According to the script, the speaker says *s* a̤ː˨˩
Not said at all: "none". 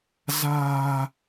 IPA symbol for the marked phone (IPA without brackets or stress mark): z